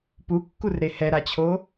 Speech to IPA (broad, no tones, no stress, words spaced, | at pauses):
pukːurɾe hɛɾat͡ɕʰo